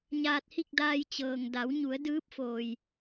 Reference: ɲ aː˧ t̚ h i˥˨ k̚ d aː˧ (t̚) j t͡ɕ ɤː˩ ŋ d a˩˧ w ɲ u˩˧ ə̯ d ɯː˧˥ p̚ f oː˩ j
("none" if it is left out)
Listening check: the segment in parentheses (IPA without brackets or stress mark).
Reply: none